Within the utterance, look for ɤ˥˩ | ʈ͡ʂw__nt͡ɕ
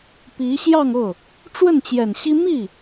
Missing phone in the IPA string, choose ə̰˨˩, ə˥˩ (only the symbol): ə˥˩